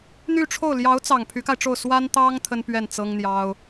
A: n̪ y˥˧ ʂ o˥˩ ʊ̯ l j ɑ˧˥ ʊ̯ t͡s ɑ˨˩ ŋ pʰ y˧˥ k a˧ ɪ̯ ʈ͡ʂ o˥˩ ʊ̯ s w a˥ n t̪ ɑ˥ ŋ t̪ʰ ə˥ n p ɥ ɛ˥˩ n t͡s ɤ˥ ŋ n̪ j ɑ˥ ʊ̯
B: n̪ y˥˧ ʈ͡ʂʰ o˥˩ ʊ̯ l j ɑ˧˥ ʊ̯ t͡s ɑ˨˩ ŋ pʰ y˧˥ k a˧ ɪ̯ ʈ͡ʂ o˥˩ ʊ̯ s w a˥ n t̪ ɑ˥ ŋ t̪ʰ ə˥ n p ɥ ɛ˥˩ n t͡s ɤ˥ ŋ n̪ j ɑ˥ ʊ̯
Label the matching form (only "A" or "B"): B